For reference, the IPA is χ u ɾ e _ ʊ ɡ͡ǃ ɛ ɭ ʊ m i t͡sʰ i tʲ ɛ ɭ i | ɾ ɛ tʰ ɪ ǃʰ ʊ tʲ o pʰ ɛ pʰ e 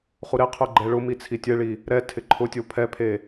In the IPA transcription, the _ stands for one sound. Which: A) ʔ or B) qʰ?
B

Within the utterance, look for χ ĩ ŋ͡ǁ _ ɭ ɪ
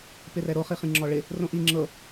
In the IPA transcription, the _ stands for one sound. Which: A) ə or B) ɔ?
B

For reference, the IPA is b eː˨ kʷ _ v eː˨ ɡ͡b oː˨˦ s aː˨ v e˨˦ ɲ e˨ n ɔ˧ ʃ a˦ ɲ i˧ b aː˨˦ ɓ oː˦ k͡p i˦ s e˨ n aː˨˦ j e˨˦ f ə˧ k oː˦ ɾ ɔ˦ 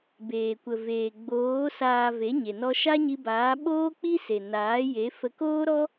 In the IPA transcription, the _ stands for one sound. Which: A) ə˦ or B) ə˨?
B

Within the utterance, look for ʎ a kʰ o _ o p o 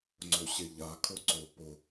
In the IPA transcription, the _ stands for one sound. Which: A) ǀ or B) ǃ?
A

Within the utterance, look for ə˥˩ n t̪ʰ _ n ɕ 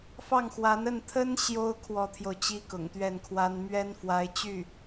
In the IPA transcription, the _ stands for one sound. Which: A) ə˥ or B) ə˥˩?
A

